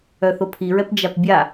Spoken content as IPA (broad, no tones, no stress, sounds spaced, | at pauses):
œ θ o pʰ i ɹ ɛ p d͡ʒ a p bʲ a